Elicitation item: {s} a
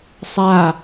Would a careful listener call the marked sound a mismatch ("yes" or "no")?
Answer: yes